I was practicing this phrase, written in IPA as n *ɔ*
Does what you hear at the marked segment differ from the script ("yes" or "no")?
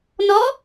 no